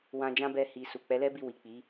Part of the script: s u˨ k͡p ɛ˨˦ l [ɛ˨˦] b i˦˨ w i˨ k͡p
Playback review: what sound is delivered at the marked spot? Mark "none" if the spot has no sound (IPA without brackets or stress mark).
ɛ˦